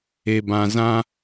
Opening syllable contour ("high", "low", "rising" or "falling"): low